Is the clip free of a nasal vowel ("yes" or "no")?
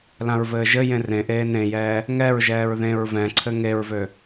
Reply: no